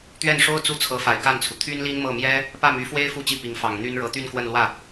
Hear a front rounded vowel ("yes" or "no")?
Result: yes